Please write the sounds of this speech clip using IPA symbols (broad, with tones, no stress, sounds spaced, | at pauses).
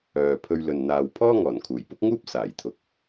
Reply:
œː˨ pʰ ɵ˧ ɥ l ɵ˨ n n̪ aː˨ w pʰ ɔː˥ ŋ ɔː˨˩ n kʰ uː˨˩ j p ʊ˥ k̚ ŋ uː˥ p̚ s aː˨˩ j t̪ʰ ʊ˨˥ k̚